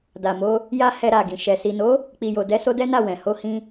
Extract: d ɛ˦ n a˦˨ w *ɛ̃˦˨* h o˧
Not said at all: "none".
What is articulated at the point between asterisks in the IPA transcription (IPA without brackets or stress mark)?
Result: ɛ̃˨